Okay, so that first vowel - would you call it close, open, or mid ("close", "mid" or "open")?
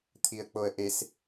close